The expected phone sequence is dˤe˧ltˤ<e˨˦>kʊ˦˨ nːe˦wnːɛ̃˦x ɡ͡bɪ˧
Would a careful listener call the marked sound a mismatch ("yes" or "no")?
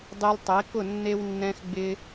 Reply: no